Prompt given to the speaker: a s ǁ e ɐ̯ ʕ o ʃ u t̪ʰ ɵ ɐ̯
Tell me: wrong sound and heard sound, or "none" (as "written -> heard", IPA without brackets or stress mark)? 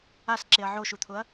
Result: ɵ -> ʊ